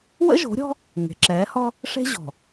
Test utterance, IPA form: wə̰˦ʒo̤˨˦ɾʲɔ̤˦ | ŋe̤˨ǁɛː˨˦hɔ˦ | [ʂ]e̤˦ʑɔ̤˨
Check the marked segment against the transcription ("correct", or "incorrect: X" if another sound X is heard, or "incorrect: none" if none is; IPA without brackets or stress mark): correct